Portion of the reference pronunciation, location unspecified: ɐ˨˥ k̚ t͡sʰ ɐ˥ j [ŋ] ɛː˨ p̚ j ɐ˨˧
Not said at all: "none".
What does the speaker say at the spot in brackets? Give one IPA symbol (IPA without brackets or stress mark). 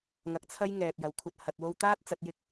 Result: ŋ